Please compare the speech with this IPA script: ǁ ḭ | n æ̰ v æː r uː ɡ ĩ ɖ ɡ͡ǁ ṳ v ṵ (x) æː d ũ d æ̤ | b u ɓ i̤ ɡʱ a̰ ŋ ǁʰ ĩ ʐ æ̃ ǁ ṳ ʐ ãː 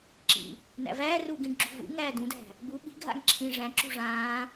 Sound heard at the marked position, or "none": ŋ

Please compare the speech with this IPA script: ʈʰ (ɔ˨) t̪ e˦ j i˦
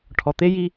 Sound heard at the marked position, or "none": ɔ˨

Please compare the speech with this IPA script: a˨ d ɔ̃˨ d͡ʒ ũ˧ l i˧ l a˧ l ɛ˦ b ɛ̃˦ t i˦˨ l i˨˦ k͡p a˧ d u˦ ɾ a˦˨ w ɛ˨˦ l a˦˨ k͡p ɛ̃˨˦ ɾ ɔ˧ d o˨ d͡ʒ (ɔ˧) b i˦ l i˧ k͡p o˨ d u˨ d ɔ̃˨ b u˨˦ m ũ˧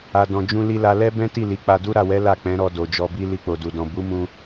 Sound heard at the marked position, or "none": ɔ˧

